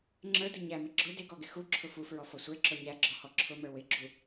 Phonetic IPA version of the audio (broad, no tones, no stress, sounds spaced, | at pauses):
ŋ͡ǁ ə˞ d ʊ ɲ æ m ɪ ɡ͡ǁ ʊ d ɪ ɡ ɔ ɡ ɪ x u ǁʰ ʊ f u f ɹ ɔ f ɔ sʷ ə˞ ǁ ɔ ɲ æ ɡ͡ǁ ɔ h ɔ ǁʰ ʊ m ə˞ w ɪ ɡ͡ǁ u